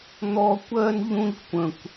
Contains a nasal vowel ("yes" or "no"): yes